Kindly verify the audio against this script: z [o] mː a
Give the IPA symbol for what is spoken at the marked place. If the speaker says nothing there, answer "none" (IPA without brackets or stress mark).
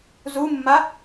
u